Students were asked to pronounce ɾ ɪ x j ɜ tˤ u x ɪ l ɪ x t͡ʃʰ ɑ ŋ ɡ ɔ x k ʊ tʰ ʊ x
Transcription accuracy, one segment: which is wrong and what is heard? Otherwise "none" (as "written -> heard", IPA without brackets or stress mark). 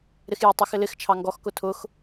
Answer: none